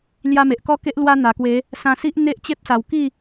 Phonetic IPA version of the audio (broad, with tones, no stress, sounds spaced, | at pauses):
l j a˦ m e˨ ʔ k ɔ˥˧ k e˦ ʔ l w a˧ n̪ a˨˩ k w e˨˦ | s ã˧ s i˦ ʔ n̪ e˦ ʔ t͡ɕ e˦ p̚ s a˨˩ w k i˥˧